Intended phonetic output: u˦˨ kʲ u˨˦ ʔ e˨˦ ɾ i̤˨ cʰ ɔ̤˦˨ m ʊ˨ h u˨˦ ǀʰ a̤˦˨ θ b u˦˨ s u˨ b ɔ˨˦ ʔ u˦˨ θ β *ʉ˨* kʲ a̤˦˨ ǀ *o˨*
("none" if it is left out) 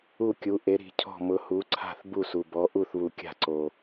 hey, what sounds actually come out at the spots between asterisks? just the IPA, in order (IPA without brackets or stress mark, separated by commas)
u˨, o˨